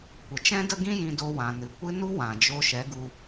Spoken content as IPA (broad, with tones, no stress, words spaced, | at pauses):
kʷə˨t͡ʃɛ̃˦də˦ɡĩ˦ jĩ˧do˧wã˨ nɨ˨kʷɨ˦ nu˦wã˨ d͡ʒo˧ʃɛ˨˦ɡu˧